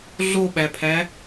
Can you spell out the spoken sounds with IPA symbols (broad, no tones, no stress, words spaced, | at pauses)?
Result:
ɮoɓæpʰæ